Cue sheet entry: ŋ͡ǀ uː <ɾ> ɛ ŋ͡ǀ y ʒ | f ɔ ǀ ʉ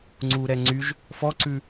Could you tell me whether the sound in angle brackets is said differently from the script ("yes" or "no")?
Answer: no